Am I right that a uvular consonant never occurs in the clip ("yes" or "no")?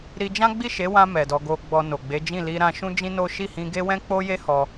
yes